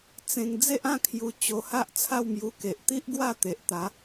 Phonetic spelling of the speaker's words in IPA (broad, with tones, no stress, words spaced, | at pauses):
t͡sẽ˧ŋ d͡ze˦ʔã˥˧ kʰju˧ t͡ɕo˧ha˦ʔ t͡sʰa˥˧wmju˧ ke˨ʔt̪i˦ʔɡwa˥˧ t̪e˨ʔt̪a˨˦